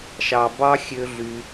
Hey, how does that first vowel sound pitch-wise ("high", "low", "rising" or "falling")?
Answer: low